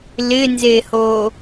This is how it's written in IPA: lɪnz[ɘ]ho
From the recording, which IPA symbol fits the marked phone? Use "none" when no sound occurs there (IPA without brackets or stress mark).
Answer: e